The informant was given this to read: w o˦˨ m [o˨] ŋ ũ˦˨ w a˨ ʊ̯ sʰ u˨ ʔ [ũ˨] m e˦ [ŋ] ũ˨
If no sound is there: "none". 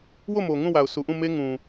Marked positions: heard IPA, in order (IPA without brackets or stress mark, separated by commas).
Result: o˨, ũ˦˨, ŋ